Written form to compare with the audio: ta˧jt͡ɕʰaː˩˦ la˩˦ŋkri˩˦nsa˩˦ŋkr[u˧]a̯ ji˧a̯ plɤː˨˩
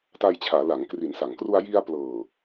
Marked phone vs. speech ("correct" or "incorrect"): correct